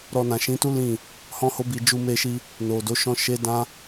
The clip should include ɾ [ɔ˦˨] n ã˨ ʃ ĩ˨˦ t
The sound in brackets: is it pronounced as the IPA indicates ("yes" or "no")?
no